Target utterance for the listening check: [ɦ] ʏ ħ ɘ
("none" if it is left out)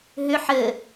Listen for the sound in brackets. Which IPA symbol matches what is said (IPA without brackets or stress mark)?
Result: ɦ